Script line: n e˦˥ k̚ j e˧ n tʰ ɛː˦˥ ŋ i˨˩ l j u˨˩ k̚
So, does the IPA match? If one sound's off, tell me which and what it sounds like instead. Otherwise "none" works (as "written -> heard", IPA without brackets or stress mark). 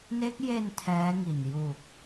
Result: l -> n